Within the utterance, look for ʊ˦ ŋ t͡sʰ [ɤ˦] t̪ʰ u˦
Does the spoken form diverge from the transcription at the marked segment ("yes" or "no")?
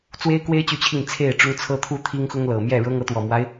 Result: no